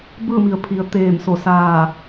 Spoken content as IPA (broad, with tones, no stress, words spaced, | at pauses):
bɯː˥˨mi˩˧ə̯pʰi˩˧ə̯ t̪eː˧˩mso˧˩ saː˧˩